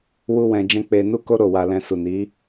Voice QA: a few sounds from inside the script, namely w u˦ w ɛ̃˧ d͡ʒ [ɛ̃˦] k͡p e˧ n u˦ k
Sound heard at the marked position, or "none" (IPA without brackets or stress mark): ɛ̃˦